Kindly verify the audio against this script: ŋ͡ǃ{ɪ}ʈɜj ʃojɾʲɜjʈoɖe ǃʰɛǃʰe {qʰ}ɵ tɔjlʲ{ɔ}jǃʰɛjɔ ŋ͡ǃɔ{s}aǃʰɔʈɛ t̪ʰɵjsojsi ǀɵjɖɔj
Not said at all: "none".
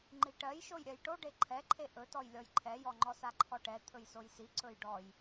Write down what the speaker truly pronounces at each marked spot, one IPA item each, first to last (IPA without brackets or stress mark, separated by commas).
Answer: i, ʔ, ɔ, s